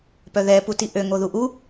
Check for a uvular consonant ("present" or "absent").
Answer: absent